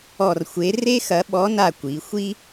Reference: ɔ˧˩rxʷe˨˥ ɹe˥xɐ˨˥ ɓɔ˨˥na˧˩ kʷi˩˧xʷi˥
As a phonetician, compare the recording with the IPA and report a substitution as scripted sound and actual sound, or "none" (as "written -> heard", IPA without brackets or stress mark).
ɹ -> r